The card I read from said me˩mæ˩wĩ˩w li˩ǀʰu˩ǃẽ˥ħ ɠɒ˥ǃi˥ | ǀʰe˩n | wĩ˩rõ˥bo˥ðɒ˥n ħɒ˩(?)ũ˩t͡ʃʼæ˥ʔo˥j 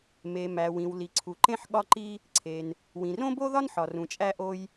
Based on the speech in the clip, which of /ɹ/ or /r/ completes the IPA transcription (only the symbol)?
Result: r